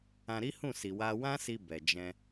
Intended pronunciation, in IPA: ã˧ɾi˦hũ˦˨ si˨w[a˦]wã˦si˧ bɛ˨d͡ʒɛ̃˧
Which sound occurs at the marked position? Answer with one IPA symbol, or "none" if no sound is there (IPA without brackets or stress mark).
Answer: a˧